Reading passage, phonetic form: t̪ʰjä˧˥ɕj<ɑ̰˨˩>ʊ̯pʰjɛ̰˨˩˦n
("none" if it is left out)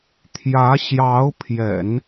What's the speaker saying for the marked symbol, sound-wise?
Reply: ɑ˧˥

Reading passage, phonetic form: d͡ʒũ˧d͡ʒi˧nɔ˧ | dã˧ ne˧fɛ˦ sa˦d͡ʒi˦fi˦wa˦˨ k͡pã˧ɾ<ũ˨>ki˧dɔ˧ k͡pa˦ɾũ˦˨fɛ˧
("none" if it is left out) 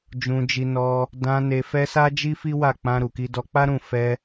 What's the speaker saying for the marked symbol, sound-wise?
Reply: u˨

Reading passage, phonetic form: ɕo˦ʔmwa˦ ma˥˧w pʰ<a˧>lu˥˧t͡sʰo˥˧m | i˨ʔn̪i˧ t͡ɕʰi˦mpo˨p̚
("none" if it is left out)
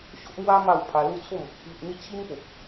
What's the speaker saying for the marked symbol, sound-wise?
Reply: a˧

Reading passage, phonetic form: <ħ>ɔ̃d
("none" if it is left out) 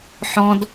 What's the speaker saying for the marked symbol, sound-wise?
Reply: ħ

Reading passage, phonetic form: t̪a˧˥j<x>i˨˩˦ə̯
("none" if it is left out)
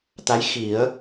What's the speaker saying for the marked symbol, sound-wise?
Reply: x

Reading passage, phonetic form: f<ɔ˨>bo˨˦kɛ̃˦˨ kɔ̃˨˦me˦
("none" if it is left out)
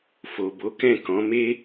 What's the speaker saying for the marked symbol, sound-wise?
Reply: o˨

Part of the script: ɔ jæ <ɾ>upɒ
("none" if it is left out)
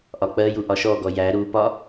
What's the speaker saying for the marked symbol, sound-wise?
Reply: ɾ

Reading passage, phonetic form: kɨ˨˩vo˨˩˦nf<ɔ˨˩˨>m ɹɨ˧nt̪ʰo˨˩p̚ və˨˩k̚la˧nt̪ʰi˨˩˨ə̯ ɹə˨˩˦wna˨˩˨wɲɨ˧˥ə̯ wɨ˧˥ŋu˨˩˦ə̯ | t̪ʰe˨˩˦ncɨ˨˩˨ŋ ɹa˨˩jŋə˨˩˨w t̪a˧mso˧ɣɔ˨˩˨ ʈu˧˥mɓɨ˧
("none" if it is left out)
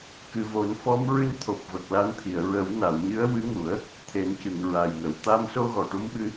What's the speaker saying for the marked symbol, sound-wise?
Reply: ɔ˧˥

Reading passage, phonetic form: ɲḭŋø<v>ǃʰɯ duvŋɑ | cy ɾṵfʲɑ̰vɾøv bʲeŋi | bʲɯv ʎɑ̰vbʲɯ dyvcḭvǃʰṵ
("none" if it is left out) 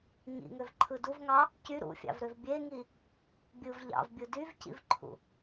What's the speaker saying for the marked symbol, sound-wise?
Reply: v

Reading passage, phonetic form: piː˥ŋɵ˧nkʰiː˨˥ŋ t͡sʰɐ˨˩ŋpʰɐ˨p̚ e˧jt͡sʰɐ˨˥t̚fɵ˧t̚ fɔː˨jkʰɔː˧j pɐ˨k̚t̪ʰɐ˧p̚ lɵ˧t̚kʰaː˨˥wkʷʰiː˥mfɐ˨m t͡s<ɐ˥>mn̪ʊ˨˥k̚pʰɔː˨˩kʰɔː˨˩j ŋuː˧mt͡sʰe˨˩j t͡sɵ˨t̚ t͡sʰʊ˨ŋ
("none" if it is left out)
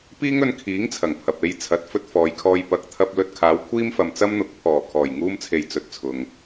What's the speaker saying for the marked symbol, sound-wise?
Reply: ɐ˥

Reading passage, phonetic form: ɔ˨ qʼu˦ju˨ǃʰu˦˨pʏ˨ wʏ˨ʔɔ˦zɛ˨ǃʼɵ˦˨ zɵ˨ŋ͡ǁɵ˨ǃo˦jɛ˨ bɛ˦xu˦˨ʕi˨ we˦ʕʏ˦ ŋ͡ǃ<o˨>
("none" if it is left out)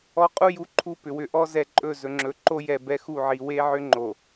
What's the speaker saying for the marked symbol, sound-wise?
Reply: o˨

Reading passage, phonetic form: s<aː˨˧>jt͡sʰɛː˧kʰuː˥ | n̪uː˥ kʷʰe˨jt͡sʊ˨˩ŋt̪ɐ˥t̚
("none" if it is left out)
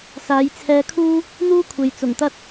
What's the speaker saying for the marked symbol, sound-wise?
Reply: aː˨˧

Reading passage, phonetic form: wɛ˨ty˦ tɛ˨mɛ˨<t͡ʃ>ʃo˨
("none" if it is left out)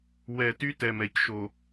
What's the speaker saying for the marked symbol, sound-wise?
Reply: c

